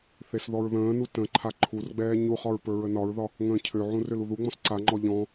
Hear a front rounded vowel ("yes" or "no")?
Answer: yes